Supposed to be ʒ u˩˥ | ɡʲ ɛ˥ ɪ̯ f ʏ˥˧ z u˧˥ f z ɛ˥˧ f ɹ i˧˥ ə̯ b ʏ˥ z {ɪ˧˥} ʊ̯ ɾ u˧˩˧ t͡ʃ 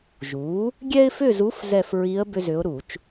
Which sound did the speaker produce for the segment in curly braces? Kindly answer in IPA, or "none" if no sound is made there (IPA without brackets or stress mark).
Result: ʏ˧˥